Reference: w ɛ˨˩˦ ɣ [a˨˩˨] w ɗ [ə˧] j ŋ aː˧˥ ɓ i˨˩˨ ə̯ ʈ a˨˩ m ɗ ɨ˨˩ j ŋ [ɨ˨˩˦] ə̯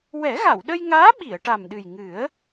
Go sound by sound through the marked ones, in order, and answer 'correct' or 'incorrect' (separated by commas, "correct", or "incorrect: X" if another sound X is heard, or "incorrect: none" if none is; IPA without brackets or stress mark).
correct, correct, correct